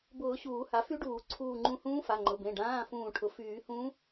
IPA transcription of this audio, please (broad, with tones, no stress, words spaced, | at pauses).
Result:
bʊː˨˩˦ ɕuː˨˩˦ha˩˥fy˧˥ɖuː˨˩˦ ǀʰuː˧˩ŋ͡ǃũ˧˩hũː˧˥ fa˩˧˩ŋ͡ǃʊ˩˧˩bẽ˩˧˩ ɖãː˩˧˩ fũː˧˩ʈʰʊ˩˥ fyː˨˩˦hũ˧˥